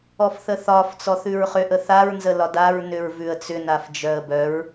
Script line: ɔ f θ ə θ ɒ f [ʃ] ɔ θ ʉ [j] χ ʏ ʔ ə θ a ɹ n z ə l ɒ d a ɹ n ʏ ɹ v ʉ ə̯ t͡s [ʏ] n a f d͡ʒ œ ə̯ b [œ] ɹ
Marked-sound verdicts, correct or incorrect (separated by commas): incorrect, incorrect, correct, correct